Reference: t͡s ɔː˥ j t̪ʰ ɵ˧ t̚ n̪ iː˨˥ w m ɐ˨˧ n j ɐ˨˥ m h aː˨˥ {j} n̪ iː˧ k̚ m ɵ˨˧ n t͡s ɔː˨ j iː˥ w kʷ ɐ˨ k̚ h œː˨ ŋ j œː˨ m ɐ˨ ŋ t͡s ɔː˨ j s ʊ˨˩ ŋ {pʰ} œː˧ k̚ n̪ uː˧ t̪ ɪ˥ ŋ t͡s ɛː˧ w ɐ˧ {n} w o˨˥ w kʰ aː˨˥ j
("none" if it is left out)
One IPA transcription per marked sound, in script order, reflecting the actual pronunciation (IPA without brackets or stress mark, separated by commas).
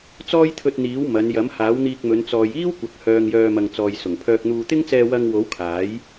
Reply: w, pʰ, ŋ